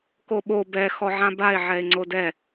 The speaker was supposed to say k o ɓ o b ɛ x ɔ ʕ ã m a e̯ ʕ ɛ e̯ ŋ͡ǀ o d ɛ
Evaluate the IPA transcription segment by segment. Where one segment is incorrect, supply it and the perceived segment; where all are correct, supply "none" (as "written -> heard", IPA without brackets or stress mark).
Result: m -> b